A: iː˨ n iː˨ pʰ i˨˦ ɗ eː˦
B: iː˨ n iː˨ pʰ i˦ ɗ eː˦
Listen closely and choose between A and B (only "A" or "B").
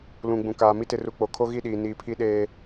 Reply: B